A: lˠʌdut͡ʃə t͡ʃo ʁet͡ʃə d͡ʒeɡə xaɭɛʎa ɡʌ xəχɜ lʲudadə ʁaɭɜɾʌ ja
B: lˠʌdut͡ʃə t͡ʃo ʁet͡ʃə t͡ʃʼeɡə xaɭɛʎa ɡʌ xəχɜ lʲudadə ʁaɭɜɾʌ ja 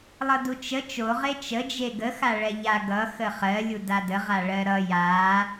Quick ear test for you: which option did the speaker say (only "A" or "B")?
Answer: A